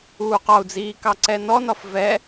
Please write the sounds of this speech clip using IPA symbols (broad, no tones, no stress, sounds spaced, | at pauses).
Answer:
uː q ɒ u̯ d͡z iː k ɑ ǀ ɛ n ɔ n ɒ f v ɛ